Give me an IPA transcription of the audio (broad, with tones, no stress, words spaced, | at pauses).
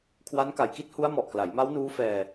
kʰwa˦˥nka˨˩jki˥˩t̚ hu˦˥a̯mɔ˨˩ʔkla˩˦jma˦˥w nuː˦˥fɛː˧